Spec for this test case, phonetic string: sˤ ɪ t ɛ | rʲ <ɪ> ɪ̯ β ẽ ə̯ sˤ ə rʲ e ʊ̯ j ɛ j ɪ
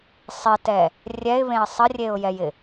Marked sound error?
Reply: yes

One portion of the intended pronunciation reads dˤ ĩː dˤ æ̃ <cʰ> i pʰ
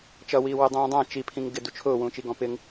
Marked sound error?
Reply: yes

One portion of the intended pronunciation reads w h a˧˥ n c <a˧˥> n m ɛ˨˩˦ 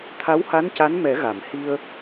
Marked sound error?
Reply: no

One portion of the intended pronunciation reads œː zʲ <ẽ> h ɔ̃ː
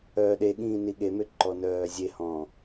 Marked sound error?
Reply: yes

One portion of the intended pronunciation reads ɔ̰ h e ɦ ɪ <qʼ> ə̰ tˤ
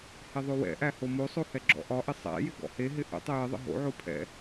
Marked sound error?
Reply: yes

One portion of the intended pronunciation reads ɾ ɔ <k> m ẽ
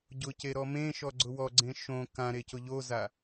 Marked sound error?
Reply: yes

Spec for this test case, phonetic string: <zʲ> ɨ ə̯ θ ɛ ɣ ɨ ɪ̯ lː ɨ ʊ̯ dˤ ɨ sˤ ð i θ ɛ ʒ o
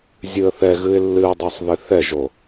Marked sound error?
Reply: no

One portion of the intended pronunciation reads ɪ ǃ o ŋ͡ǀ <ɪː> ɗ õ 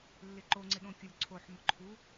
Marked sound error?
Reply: yes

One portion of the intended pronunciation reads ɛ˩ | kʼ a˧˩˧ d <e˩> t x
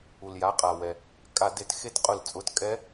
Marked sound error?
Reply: yes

